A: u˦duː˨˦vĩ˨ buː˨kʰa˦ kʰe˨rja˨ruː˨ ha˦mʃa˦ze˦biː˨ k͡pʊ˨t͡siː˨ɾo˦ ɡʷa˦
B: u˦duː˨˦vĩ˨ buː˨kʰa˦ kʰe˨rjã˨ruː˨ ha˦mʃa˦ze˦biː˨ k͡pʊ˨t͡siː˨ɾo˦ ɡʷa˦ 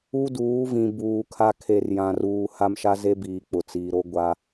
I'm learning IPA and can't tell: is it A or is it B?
B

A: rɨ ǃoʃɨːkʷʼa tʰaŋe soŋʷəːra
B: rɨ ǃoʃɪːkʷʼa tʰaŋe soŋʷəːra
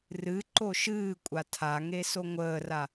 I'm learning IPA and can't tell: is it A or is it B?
A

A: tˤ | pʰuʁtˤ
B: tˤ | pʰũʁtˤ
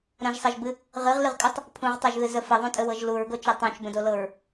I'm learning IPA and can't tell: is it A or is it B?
B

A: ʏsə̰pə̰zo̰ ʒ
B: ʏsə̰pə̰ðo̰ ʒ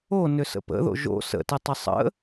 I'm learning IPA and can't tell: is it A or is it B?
B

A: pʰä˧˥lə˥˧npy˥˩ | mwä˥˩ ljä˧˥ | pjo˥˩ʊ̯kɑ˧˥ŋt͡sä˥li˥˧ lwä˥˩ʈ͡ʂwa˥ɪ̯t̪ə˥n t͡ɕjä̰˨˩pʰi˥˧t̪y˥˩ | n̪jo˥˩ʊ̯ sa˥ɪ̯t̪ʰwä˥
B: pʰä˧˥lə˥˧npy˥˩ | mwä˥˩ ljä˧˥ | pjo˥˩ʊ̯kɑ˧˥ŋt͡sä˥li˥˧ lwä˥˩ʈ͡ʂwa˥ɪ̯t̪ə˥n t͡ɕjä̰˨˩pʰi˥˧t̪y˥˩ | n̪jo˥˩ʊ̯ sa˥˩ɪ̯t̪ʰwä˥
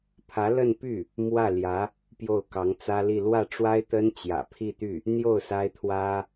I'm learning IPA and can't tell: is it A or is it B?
A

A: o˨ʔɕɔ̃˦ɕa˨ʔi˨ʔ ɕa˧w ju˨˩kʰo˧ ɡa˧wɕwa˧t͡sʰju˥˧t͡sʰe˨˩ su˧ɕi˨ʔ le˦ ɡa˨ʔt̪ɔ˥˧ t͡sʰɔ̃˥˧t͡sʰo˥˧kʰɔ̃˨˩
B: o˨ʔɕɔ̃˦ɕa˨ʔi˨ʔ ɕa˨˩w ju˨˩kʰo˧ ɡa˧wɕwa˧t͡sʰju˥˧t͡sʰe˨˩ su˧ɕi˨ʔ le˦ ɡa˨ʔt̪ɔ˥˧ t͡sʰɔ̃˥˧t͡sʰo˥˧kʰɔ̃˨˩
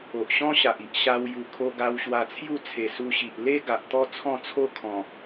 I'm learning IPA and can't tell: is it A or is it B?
A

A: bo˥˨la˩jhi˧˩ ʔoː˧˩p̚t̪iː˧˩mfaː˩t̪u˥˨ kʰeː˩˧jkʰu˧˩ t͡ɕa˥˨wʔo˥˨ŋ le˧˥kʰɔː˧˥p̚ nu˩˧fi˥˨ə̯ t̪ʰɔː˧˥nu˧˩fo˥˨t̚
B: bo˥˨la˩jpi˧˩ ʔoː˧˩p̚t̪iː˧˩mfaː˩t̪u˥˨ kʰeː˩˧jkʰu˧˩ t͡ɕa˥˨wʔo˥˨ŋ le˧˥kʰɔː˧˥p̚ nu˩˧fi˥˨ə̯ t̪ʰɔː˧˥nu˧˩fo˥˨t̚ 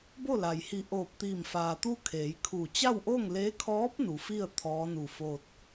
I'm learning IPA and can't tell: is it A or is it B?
A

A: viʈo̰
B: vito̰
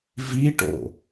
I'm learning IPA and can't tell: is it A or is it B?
A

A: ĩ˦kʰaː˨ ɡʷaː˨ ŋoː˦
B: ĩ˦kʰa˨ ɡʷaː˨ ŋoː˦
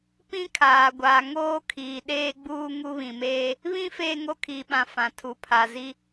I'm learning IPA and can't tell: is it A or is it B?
A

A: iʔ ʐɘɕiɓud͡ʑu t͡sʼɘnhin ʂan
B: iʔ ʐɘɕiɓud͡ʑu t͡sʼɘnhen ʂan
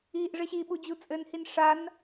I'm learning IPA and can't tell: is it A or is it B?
A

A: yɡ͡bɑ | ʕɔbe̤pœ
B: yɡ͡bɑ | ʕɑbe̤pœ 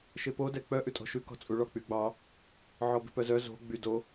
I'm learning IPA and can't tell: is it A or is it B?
A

